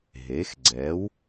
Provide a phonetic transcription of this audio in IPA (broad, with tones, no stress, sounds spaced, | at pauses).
ɦ e˩˥ x ɡ͡ǀ ɛ˩˥ w